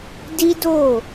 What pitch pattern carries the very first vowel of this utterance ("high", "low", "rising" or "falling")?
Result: high